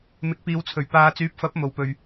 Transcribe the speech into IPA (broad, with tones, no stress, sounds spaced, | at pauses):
m ɪ˨˥ k̚ p iː˨ w t͡sʰ ɵ˨˩ ɥ p aː˨ t͡s yː˨˥ p̚ f ɐ˨˥ p̚ m o˨ w p ɵ˨ ɥ